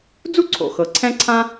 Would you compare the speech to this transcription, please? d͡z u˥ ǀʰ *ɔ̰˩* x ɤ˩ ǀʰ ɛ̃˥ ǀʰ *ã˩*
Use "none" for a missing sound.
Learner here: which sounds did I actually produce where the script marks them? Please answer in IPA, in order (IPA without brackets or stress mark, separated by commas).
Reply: o̰˩, ã˥